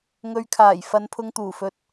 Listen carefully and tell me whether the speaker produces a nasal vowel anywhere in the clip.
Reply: no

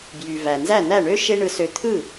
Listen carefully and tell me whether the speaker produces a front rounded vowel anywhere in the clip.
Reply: yes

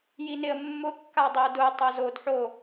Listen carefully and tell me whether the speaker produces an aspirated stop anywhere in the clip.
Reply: no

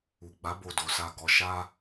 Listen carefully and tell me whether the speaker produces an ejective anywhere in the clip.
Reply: no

